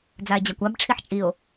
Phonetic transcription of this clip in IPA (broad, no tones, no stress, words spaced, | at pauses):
d͡zae̯d͡ʑakʷab ʈ͡ʂʰiħt͡ʃʼio̯